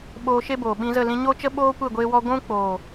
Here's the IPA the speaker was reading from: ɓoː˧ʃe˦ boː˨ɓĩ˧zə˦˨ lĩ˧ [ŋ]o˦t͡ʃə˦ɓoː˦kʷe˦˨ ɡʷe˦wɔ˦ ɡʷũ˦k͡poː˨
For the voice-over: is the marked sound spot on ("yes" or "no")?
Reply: no